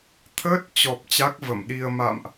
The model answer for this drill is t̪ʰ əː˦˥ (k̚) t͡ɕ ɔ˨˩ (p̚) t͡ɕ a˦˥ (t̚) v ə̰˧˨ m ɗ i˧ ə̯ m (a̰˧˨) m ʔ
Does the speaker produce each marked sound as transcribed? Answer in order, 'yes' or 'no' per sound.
no, yes, no, yes

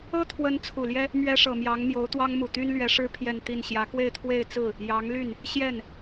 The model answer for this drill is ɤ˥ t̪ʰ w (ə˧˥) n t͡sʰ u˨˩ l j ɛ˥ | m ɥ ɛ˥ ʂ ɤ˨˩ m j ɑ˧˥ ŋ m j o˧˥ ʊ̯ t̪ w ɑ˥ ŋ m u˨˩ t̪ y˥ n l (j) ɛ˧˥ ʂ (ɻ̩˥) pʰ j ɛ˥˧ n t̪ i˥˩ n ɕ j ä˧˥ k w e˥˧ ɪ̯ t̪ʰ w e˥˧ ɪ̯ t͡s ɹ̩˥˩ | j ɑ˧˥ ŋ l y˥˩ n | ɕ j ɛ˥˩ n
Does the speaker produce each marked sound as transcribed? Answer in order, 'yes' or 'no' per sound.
yes, no, yes

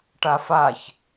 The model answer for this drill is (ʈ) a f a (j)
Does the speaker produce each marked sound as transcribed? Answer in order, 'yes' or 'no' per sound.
yes, no

